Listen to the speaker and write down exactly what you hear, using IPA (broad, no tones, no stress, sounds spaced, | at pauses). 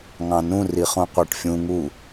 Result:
ŋ ɑ̃ n ũ r i χ ũ qʷ æ ʈ fʲ ũ ŋ u